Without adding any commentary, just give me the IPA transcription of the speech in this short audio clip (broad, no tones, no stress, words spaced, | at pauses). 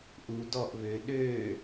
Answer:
ʔu dɔʔvøː ɗøː